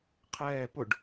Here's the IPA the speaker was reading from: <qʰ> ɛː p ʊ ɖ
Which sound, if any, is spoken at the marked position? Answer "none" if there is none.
qʰ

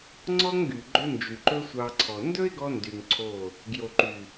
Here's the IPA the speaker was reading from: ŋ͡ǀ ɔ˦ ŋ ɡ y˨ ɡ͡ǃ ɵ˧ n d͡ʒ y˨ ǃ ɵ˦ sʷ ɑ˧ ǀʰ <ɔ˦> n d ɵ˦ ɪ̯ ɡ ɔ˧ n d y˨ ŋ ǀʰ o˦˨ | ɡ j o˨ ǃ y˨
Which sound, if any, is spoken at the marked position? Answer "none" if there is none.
ɔ˨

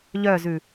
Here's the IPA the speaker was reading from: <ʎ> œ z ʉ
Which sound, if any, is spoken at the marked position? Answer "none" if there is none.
ʎ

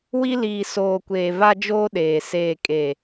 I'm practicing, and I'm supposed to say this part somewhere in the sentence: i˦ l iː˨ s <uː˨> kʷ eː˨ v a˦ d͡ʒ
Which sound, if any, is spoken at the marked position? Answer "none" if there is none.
oː˨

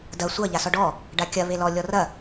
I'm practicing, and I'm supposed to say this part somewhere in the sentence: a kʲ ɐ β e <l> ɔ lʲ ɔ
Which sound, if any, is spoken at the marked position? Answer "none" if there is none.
l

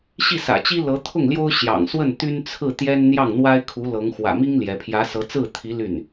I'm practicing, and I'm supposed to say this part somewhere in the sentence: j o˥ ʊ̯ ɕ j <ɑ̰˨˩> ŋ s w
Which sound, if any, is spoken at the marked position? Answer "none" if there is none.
ɑ̰˨˩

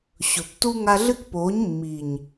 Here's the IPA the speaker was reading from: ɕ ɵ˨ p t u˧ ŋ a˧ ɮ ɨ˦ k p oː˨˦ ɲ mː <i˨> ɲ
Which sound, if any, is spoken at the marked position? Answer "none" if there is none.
i˨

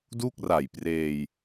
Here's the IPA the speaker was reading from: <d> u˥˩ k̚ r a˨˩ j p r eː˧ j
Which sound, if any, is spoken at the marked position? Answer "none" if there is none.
d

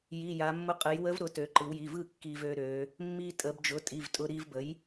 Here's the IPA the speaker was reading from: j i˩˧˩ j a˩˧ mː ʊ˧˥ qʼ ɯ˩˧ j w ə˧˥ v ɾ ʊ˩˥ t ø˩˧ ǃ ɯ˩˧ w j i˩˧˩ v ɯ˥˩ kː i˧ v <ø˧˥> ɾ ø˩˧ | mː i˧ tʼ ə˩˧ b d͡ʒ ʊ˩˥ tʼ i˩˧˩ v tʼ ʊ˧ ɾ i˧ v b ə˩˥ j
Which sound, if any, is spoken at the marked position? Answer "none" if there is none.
ø˧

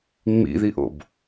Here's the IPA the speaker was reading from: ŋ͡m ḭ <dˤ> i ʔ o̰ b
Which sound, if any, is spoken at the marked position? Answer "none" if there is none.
ð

